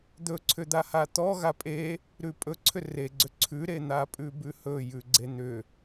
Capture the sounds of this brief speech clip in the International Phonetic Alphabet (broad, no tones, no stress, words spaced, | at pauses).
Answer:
d̪ɵǀʰʏd̪aha t̪ɔ ɣapʼe | ɾʉpʼɵ ǀʰʏreɡ͡ǀʏ ǀʰʉɾen̪a pʼʉbʉhɵ jʉɡ͡ǀen̪ʏ